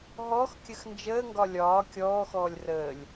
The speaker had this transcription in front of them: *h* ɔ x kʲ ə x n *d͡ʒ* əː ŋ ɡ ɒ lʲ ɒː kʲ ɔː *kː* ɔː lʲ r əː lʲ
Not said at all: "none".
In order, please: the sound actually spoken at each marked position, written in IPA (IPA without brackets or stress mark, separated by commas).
ɦ, d͡ʒ, x